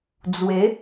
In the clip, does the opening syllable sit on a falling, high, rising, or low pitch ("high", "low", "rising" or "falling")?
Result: rising